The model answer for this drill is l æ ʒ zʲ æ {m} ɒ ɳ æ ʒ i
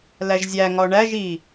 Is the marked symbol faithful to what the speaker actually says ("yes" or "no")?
no